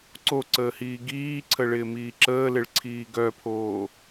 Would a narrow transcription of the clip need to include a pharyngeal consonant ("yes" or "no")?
no